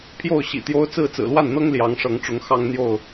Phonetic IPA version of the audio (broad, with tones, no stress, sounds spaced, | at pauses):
pʰ j o˥˨ ʊ̯ ɕ ḭ˨˩ t̪ j o˦ ʊ̯ t͡s ɹ̩˥˨ t͡s ɹ̩˨˩ l w a˥˨ n n̪ ɤ˦ ŋ l j ɑ˨˦ ŋ ʂ ɤ˨˦ ŋ ʈ͡ʂ ʊ˨˦ ŋ x ɑ˦ ŋ n̪ j o˥˨ ʊ̯